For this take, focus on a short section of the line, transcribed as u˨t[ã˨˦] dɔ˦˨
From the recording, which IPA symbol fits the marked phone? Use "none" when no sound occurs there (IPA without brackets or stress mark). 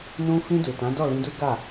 ã˨˦